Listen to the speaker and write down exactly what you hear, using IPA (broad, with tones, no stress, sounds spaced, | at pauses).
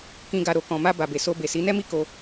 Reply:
k ĩ˨ ɡ a˨ ɾ o˨ k ɔ̃˨ m a˧ b a˨ b e˨ s o˧ b e˨ s i˨˦ n ɛ˦ m i˦ k o˧